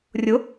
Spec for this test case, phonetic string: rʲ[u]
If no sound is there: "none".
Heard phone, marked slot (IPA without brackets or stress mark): ʊ